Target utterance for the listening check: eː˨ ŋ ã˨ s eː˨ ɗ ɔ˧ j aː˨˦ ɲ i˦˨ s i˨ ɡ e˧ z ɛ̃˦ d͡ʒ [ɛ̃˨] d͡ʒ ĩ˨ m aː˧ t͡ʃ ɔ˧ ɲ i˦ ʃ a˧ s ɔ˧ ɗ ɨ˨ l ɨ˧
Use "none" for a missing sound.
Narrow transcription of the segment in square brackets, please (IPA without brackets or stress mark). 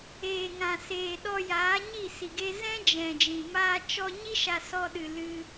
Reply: ɛ̃˨